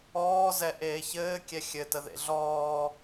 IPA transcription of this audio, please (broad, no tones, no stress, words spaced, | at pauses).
ɔːzɛ ʔeːçɘː kʲɛxʲɘtəðḛ ɮɔː